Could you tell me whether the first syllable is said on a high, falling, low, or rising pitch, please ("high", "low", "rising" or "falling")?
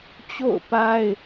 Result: falling